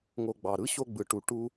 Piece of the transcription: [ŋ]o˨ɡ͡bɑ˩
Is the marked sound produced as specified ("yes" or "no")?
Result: yes